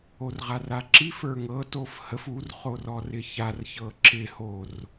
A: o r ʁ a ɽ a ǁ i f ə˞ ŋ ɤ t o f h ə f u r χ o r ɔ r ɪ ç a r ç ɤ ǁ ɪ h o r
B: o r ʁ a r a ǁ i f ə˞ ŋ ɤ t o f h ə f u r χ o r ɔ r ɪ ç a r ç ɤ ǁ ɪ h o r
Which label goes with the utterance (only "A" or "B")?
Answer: B